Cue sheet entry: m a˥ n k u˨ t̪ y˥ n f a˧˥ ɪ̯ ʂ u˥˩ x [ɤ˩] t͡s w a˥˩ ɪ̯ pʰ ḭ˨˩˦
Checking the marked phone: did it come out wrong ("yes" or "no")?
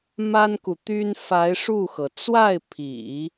no